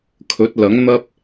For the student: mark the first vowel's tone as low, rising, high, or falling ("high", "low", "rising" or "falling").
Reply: rising